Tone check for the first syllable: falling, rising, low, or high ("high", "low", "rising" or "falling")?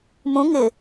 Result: rising